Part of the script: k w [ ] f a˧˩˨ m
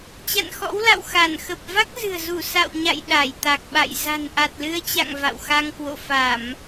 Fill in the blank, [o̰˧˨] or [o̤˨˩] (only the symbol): o̰˧˨